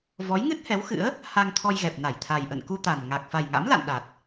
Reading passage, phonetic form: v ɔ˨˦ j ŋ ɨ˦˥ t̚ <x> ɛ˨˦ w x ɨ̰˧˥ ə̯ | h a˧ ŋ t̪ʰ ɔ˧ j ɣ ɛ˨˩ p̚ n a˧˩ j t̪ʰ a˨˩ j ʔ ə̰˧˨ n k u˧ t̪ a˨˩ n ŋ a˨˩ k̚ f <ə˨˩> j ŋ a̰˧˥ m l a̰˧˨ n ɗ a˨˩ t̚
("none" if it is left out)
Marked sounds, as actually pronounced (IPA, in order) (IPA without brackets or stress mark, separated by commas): h, a˨˩